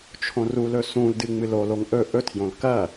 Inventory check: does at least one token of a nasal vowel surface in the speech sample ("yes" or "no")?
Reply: yes